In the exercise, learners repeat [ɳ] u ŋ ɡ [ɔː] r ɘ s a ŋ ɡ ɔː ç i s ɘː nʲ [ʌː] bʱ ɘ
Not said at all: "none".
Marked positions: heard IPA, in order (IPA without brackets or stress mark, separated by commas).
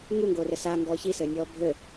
ŋ, oː, ɔː